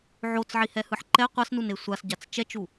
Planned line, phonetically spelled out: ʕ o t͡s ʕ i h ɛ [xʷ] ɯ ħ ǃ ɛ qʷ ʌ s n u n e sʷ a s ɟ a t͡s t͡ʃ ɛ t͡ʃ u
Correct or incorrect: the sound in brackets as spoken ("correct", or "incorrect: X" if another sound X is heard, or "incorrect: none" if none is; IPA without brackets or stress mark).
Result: incorrect: h